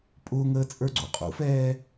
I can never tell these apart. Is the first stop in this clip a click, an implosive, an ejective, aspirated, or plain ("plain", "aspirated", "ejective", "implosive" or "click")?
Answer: ejective